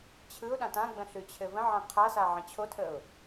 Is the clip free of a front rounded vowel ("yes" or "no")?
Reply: yes